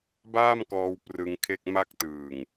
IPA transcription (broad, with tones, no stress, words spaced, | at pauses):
baː˥˩mkɔː˧w prɯ˧ŋkʰe˥˩k̚ ma˦˥k̚tɯː˨˩ŋ